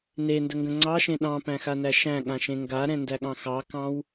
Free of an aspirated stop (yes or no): yes